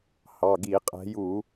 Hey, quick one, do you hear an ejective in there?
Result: yes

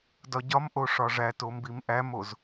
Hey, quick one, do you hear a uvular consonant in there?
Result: no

